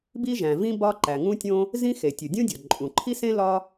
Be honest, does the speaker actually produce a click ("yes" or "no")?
yes